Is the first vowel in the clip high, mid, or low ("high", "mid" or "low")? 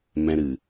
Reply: mid